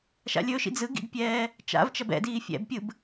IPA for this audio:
ʃ a̰ lʲ ɵ ʃ ḭ d͡z ɯ ɡ ḭ ɡ pʲ ɛː | t͡ʃ a̰ v t͡ʃ ɐ b ɛ̰ d iː fʲ ɛ̰ b pʲ ɯ b

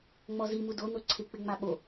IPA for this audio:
ŋ͡m ɔ z i m u d o n o ǀʰ ɪ k͡p ɪ ŋ͡m a ɓ o

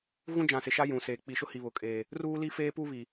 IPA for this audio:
ɣ ũ˦ d͡ʒ ã˨ s ɪ˨ ʃ a˦ j ũ˨ s eː˨ k͡p i˨ ʃ ʊ˦ h i˨ β ʊ˨ kʼ eː˨ | r uː˦ l i˦ f eː˦ p u˦ β i˨

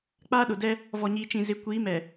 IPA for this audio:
k͡p aː˦ ɗ ʊ˨ d ɛ˦ | v ɔ˨ ɲ iː˨ t͡ʃ ĩ˨ z ɪ˨˦ kʷ iː˨˦ m ɛ˨

